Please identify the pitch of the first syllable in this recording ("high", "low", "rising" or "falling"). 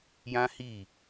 high